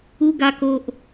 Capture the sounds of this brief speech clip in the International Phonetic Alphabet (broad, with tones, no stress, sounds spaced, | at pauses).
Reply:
u˦ ɡ a˦ k o˦ ʔ